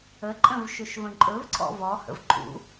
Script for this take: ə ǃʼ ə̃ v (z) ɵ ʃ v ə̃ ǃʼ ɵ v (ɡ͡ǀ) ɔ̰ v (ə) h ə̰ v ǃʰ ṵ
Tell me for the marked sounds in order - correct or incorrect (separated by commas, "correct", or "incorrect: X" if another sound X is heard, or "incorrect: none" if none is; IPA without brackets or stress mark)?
incorrect: ʃ, incorrect: ǀʰ, incorrect: ɔ